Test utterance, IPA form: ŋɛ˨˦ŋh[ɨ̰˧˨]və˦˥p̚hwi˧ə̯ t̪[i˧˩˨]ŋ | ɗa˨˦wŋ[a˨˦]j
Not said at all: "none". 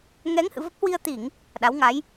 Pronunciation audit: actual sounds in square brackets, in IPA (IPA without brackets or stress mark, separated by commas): ɨ̰˧˨, i˧˩˨, a˨˦